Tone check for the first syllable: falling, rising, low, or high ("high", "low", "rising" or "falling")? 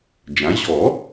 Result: rising